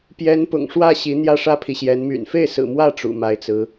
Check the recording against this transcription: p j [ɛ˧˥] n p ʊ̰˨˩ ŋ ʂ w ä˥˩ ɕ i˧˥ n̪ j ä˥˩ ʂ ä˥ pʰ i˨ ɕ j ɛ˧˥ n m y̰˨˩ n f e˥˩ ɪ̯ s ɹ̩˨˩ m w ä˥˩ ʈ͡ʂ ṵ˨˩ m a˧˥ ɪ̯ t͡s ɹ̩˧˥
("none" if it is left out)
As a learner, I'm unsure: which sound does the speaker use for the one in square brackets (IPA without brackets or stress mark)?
ɛ˧˥